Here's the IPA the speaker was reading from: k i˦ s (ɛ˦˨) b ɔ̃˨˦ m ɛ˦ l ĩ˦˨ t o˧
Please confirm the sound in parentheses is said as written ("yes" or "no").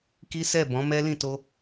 yes